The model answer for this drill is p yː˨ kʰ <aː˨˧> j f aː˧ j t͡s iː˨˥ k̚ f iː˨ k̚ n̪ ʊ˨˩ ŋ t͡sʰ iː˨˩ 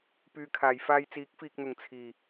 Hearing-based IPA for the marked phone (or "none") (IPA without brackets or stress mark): aː˨˩